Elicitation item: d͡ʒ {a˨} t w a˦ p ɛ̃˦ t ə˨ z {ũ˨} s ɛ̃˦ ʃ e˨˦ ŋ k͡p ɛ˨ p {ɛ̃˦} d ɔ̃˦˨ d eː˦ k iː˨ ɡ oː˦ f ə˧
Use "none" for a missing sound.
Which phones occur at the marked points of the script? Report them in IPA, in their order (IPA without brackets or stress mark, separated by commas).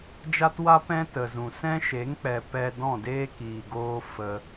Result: a˦, ũ˨, ɛ˦